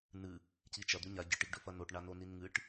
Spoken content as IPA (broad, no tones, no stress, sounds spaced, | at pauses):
n ɨ | c i t͡ʃ ɐ d̪ ʉ ɲ a ɟ ɨ ʈ i ɡ ɖ ɵ f ɐ n o ʈ ɳ a n o n i n ŋ ɨ ʈ